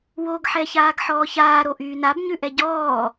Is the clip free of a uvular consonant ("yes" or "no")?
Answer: yes